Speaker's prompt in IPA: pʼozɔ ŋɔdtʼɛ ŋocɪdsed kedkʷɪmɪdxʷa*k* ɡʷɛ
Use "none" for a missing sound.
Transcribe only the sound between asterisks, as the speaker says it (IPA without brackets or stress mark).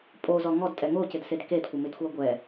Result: none